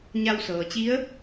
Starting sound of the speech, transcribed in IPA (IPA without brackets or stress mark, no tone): ɲ